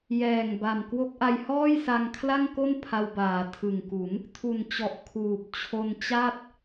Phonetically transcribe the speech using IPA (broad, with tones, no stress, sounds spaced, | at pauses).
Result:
j ɛː˨˩ ŋ b a˨˩ m k w o˦˥ k̚ ʔ a˧ j h ɔː˥˩ j s a˧ ŋ kʰ l a˥˩ ŋ k o˥˩ n pʰ a˧ w b aː˩˦ tʰ ɯ˨˩ ŋ k u˩˦ n | tʰ u˨˩ n t͡ɕ ɔ˨˩ ʔ kʰ uː˨˩ p̚ t͡ɕʰ o˧ n t͡ɕ a˥˩ t̚